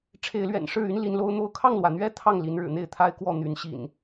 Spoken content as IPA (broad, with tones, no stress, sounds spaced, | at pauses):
ʈ͡ʂʰ e˨˦ ɪ̯ l ɥ ɛ̰˨˩ n ʂ ɻ̩˥˨ y˦ n l i˨˦ n l o˦ ʊ̯ n̪ o˥˨ ʊ̯ kʰ ɑ˥˨ ŋ l w ä˩ n̪ ɥ ɛ˥˨ t̪ʰ ɑ˥˨ ŋ l i˨˦ n ɻ ɻ̩˨˩ n̪ e˥˨ ɪ̯ t̪ʰ a˦ ɪ̯ k w ɔ˥˨ n̪ y˨˦ n ɕ ḭ˨˩ n